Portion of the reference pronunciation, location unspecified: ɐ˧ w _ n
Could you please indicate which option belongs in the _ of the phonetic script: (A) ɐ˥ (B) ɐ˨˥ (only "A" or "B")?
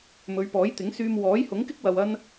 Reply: A